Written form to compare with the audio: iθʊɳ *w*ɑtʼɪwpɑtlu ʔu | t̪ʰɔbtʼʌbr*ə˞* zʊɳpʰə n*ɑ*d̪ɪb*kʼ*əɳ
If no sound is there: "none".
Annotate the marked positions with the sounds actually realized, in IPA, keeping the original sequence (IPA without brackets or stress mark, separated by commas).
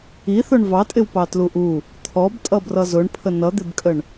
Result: v, ʌ, ʌ, kʼ